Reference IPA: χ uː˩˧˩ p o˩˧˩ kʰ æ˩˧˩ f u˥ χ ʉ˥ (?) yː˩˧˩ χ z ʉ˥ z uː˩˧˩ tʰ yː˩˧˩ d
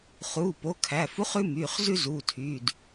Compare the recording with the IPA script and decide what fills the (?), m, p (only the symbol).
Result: m